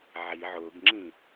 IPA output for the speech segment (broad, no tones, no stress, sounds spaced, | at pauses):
ʕ i ʕ ʊ ɡ ŋ͡ǁ ĩ